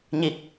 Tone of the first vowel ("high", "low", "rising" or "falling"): low